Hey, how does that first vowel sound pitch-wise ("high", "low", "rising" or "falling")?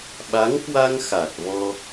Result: rising